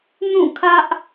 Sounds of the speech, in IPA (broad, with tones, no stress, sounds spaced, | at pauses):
n ũ˦˨ kʰ ä˦ ʔ